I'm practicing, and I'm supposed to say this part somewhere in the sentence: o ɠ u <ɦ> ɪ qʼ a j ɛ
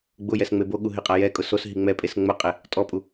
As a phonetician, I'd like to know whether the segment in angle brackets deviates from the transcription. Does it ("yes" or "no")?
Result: no